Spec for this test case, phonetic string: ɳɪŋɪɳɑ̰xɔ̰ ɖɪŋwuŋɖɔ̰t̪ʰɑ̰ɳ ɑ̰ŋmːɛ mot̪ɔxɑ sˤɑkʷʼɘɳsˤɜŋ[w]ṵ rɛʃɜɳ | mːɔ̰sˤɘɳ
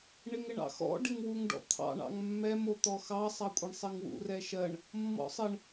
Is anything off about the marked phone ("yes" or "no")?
no